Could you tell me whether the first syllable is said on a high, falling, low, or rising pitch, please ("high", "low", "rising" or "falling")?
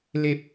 low